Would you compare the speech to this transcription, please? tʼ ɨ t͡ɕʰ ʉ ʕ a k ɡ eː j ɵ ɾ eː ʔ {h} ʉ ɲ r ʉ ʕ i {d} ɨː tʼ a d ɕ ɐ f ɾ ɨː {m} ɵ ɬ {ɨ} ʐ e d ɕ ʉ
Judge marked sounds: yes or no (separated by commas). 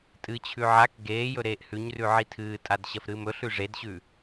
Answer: yes, no, yes, no